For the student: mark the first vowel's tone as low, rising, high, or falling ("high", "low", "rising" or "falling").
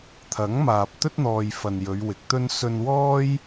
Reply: rising